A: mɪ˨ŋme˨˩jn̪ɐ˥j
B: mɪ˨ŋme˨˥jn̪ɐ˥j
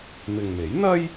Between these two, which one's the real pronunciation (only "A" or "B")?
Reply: B